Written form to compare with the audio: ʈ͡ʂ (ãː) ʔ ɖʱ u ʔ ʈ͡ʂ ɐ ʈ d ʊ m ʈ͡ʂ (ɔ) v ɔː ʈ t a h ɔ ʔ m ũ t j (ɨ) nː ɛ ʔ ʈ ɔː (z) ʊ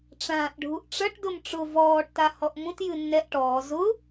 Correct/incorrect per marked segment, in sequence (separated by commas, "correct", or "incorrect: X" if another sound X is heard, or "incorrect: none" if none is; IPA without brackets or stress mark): correct, incorrect: ʊ, correct, correct